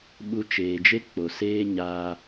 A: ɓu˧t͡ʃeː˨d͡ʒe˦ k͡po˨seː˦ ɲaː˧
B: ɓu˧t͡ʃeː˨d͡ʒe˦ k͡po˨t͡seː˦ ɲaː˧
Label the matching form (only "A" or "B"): A